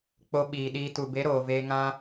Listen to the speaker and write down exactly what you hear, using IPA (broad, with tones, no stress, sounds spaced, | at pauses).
k͡p o˧ ɓ iː˨ ɗ iː˧ t u˨ b e˨˦ ɾ oː˨ v eː˧ ŋ ã˦